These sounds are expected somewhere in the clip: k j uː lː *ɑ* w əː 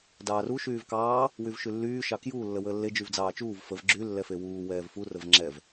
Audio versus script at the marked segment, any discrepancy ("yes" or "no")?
yes